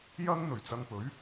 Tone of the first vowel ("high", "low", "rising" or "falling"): high